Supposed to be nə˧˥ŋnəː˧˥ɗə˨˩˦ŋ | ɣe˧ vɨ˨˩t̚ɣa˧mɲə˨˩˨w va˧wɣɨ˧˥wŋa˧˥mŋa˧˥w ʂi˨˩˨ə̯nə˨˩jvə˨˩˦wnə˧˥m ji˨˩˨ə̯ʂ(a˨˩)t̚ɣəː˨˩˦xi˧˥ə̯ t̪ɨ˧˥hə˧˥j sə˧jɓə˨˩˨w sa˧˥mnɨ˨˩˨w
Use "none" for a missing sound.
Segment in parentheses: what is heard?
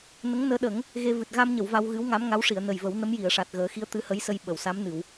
a˨˩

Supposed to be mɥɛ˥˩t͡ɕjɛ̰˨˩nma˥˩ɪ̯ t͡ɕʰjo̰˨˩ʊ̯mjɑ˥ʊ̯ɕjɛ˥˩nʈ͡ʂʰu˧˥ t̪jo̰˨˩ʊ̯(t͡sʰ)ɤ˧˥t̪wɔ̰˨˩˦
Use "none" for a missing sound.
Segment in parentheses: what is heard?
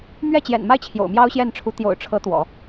ʈ͡ʂʰ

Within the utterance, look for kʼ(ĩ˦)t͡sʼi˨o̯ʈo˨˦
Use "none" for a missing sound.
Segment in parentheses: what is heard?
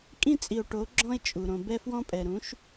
ĩ˦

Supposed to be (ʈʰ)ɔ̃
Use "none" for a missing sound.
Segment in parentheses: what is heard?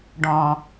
ɖ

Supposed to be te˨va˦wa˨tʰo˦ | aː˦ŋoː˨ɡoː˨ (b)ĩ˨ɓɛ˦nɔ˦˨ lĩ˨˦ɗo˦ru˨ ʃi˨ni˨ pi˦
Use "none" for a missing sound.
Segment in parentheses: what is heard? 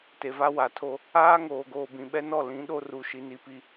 b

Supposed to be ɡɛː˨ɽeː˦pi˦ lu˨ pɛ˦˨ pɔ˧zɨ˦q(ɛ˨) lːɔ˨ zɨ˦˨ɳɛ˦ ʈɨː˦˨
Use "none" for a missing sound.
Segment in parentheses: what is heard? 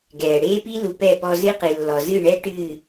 ɨ˨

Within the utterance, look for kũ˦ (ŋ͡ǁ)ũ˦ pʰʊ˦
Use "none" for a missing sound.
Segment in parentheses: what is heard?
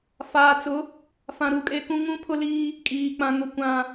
ŋ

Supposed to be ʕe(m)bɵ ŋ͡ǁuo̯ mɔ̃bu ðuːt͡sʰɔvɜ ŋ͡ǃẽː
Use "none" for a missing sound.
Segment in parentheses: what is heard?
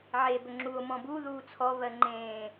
none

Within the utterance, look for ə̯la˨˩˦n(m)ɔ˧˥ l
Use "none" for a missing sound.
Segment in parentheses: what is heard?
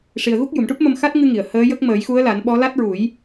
ɓ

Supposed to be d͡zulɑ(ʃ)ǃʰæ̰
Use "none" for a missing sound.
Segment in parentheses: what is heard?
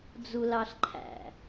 ɬ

